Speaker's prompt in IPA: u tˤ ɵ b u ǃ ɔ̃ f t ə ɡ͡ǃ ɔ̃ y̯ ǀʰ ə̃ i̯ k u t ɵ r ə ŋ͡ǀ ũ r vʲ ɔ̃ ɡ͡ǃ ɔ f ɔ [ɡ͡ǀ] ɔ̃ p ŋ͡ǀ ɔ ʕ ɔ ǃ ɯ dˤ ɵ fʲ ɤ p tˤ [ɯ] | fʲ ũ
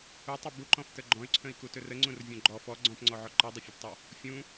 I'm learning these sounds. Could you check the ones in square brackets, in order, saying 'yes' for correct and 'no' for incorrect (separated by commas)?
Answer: yes, no